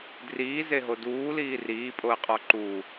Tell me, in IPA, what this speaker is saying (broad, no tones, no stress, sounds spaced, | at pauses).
d r iː z e ɦ o d uː l iː r iː pʼ o ə̯ qʼ ɒ ǃ u